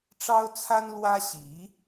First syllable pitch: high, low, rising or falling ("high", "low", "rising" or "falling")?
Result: high